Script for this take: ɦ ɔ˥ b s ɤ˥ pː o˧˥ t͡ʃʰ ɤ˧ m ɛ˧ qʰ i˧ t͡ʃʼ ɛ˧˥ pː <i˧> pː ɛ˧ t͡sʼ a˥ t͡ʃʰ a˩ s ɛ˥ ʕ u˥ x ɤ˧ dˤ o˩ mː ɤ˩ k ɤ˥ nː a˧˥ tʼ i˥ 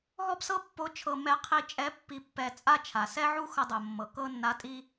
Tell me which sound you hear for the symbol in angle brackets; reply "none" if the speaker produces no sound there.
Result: i˧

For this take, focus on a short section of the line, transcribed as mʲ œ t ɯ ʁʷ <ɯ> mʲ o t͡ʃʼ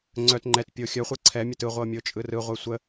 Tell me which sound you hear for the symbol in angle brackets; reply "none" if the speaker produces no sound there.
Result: ɤ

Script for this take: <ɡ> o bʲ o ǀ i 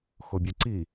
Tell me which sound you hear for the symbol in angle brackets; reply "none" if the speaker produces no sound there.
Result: x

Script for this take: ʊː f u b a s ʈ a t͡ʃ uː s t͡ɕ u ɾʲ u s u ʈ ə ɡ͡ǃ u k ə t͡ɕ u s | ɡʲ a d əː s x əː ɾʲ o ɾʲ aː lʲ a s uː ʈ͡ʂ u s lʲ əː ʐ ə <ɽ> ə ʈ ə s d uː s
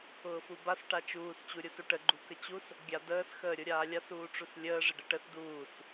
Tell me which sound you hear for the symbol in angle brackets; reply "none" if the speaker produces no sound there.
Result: ɖ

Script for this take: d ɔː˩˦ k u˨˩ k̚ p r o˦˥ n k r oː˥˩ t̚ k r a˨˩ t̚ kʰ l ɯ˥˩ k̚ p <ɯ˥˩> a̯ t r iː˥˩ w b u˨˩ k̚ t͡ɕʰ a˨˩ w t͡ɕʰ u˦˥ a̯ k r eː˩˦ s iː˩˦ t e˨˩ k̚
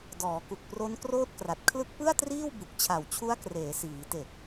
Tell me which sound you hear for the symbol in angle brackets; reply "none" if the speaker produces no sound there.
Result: ɯ˥˩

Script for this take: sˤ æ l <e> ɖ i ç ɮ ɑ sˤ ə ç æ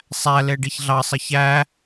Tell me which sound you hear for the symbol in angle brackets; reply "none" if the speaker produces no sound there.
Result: e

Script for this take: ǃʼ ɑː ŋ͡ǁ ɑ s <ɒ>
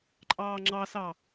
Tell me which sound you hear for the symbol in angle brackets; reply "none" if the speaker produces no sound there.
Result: ɑ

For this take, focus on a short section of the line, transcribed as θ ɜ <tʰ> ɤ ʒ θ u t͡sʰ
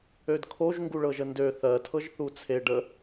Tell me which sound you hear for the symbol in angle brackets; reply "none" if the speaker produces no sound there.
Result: tʰ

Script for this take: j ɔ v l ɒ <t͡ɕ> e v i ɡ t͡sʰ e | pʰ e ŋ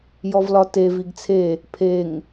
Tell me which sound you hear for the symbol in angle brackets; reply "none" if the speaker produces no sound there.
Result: t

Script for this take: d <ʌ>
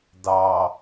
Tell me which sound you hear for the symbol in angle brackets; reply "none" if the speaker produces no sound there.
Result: ɑ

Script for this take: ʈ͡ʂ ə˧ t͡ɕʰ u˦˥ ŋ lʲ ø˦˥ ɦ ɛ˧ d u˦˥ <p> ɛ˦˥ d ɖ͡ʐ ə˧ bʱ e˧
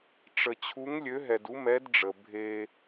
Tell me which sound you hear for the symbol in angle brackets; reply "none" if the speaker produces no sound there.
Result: m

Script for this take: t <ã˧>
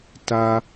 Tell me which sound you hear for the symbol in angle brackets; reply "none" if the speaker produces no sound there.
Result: a˧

